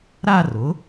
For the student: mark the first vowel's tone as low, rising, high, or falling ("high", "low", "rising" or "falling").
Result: falling